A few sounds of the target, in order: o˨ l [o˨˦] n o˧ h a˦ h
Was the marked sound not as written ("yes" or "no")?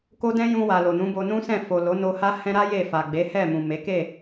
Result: no